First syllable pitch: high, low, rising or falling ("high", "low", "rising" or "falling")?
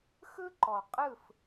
high